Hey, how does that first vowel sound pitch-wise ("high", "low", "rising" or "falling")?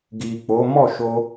low